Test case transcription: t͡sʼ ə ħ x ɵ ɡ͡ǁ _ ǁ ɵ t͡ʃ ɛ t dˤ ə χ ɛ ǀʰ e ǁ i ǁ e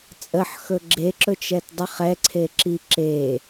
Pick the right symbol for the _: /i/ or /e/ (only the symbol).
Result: e